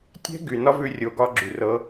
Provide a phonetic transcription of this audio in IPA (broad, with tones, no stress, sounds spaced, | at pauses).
tʲ ɛ̤˦ ɡ y˨ n ɒ˦ v ʉ˧ rʲ o˨ ɡ ɒ˧ ɡ͡ǁ y˨ r ɤ˦